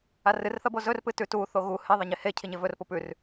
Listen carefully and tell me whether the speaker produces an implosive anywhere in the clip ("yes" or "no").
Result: no